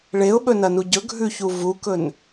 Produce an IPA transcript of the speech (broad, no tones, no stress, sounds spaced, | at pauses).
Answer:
ɭ e ʊ̯ ɓ ɵ n ɐ n u ɟ ɵ ɡʱ ʉ ç u v u k ɵ n